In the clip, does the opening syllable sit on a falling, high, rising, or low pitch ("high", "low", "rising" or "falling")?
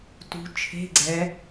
rising